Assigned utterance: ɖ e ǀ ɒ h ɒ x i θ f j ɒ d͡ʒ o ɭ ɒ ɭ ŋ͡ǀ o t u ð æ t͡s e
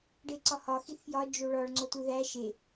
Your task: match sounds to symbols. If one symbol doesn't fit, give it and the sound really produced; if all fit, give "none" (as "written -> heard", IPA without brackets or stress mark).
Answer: t͡s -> ʃ